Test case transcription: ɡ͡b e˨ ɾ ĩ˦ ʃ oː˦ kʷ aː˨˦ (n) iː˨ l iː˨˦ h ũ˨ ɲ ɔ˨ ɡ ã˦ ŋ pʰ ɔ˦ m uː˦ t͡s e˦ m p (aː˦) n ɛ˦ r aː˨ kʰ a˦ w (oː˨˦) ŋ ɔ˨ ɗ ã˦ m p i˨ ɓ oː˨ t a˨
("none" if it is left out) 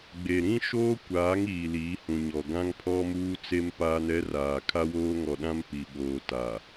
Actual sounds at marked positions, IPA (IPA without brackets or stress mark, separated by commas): ŋ, aː˦, oː˦